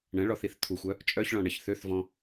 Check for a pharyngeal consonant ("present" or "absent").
absent